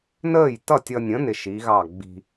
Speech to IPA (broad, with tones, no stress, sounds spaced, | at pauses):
n əː˥˩ j t ʌ˥˩ tʲ ʌ˧ nʲ ə̃˨˥ n ɪ˧ ʃ i˨˥ ɣ ɑ˥˩ ɡ͡b i̤˧